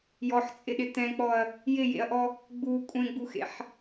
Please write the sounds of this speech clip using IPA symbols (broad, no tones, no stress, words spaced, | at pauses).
jɔħt͡sʼɪɗɪ t̪ɛ̃k͡pɔɐ̯ | jɪjḛɐ̯ʔɔ | ɡ͡bu kʷʼẽɡ͡buxḛħ